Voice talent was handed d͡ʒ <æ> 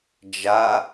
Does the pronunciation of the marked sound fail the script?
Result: yes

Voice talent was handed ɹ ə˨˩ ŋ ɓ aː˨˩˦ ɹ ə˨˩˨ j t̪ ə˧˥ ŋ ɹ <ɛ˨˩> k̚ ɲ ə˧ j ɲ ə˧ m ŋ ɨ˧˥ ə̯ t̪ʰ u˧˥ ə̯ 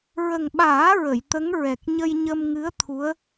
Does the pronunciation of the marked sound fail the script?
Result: no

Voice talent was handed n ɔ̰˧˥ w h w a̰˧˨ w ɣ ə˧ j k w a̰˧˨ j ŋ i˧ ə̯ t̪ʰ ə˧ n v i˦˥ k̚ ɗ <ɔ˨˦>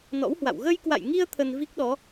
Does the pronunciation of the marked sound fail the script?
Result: no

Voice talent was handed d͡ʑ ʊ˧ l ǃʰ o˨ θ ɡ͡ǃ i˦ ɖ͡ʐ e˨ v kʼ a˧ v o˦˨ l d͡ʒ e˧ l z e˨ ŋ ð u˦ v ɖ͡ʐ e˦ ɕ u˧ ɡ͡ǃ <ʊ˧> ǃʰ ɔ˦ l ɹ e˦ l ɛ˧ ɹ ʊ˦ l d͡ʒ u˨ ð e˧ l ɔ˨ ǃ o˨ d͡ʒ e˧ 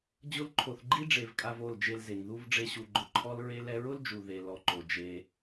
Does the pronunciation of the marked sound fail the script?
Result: no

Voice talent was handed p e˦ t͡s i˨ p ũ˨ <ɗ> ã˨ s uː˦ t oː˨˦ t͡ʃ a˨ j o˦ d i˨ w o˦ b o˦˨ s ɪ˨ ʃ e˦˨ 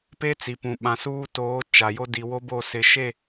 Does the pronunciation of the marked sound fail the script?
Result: yes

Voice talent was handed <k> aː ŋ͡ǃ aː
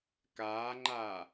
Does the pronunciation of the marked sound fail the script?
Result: no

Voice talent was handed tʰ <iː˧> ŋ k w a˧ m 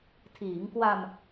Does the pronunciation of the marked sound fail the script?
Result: yes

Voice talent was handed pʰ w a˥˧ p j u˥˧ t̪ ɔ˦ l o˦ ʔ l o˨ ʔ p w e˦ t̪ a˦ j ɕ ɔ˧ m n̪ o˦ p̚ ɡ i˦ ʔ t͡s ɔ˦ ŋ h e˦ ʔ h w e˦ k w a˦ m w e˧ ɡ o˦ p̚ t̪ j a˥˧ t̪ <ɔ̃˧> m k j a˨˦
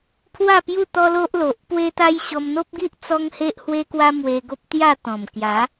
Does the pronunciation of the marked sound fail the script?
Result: yes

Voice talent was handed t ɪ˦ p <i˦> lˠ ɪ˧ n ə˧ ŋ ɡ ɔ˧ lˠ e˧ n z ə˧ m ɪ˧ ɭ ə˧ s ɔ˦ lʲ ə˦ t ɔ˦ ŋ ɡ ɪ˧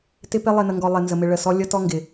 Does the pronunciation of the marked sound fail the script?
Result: yes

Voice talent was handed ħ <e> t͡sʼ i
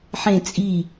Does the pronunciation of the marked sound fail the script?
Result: yes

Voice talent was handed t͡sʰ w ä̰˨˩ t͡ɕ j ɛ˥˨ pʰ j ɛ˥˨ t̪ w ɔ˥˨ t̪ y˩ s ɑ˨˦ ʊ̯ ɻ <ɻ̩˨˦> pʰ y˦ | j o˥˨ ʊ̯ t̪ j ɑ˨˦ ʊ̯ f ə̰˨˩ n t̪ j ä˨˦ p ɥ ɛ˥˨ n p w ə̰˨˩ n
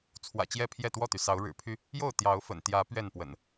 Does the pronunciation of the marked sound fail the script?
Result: yes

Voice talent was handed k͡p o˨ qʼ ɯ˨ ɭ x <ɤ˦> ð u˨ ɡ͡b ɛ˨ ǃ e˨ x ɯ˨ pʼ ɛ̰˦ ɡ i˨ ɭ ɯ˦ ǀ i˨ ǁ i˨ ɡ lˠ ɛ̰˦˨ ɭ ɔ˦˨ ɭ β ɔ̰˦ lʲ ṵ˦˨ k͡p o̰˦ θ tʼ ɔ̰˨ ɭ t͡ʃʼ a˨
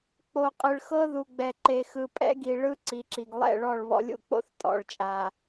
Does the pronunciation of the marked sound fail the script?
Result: no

